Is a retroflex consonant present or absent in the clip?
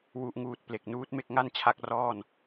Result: absent